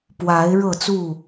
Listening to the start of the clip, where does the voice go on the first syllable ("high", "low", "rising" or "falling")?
rising